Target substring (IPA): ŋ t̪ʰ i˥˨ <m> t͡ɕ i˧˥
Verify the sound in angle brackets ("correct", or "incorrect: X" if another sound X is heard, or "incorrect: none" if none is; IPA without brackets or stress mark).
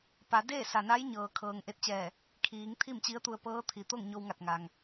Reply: correct